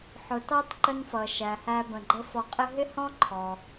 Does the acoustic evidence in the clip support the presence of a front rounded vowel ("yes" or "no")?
no